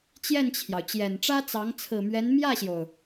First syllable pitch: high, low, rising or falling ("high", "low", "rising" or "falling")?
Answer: falling